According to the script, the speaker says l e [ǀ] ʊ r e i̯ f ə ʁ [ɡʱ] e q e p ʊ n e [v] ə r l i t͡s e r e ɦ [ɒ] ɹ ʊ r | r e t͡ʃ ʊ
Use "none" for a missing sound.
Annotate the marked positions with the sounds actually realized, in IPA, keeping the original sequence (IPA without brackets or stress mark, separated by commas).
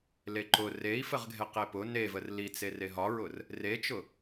ǃ, ɡʱ, v, ɒ